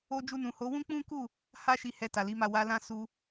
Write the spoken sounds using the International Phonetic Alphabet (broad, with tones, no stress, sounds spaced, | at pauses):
o˧ d͡ʒ u˧ n ũ˨ h o˨˦ w ũ˦ k͡p ũ˦ k u˦˨ | h a˦ ʃ i˧ h ɛ˧ t a˨ l i˨˦ m a˦˨ w a˧ l ã˦ s u˧